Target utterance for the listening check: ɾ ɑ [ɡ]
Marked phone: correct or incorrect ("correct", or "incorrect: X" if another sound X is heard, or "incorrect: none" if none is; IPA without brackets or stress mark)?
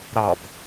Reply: incorrect: b